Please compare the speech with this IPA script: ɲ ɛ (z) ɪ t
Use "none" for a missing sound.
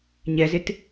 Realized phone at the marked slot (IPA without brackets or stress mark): z